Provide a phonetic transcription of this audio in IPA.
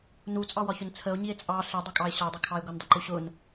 n u t͡sʼ ɑ w ɒ ç ʊ n t͡sʰ ə o̯ ɲ i e̯ t͡sʼ ɑ ɬ ɪ dˤ ʊ kʼ ɑ e̯ ɕ ɑ dˤ ɪ kʰ ɑ e̯ ɡʷ ʌ n dˤ ɪ ǃ u ɕ ʊ n

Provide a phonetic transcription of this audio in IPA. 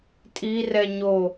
tʼ i r ɛ ɲ o

